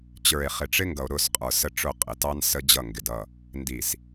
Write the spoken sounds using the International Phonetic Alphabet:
t͡ɕ ə˞˨ e̯ χ ɪ˨ ʈ͡ʂ ɪ˦ ŋ ɡ ʌ˨ o̯ ɾ ʊ˦˨ s qʼ ə˞˨ s ə˦ ʈ͡ʂ ʊ˦˨ qʼ ɪ˨ t ɑ˦ n s ə˦ d͡ʑ ʌ˦˨ ŋ ɡ ɪ˨ d ʌ˦˨ | n d i˨ s

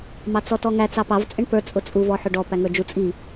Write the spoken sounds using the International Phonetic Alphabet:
m ɑ t͡s ɔ t ɔ ŋ æ t͡s ɑ p ɑ v t͡sʼ ɪ ɳ p ə˞ t͡sʼ ʊ t͡sʼ u v ɔ ħ ʊ ɖ ɔ p æ ŋ ə˞ d͡ʒ u t͡sʼ i

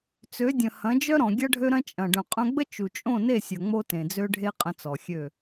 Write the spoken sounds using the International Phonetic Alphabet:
t͡s ø˨˦ dʲ ə̃˨ h ɐ̃˨˦ d͡ʒ œ˦ ɾ ɔ̃˨ ɡʲ ɐ˦ ɖʱ ø˦ ɾ ɐ̃˦ t͡ʃʼ ɐ̃˨ ɖ œ̃˨ qʼ œ̃˧ ɡ͡b ə˦ t͡ʃ u˨ t͡ʃʼ õ˦˨ n e˦˨ sʲ ɐ˨ ŋ͡m o˦ t ẽ˨ d͡z ø˦ ɖʱ e˦ qʼ ə̃˧ t͡s ɔ˨ xʲ ø˦˨

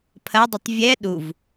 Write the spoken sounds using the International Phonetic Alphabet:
pʰ ɐ dˤ ɵ tˤ vʲ ɛ ɗ u v

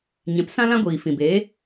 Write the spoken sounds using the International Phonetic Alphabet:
ɲ ɛ̃˨˦ p s ã˦ l ã˦ ɡʷ iː˨ f ĩ˨ b eː˨˦

